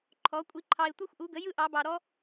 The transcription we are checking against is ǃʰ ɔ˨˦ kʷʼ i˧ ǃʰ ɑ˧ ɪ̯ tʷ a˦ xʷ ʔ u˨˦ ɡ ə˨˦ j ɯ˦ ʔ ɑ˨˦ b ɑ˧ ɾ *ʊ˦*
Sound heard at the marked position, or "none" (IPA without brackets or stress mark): ɔ˦